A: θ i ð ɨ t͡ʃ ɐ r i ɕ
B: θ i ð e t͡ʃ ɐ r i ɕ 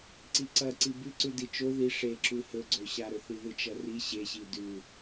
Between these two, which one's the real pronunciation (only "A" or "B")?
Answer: A